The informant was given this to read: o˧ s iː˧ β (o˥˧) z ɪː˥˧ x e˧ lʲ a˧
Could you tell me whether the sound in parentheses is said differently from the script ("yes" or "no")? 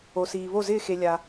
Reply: no